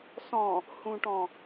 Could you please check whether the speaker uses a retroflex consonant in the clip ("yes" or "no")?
yes